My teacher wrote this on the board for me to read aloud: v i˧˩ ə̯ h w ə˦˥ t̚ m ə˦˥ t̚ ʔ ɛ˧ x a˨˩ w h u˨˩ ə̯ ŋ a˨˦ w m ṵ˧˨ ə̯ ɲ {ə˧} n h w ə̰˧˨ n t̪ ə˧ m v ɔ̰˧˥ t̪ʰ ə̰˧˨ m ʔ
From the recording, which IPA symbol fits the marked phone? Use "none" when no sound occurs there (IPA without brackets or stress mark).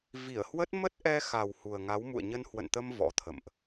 ə˧